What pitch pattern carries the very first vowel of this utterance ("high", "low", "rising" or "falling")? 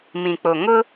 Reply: low